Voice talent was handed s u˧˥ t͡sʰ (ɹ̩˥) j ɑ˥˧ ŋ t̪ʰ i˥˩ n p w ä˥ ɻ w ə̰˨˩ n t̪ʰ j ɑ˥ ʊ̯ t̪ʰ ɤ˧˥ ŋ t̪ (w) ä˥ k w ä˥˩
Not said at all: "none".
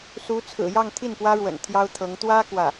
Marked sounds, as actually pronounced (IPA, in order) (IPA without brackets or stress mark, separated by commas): ɹ̩˨˩, w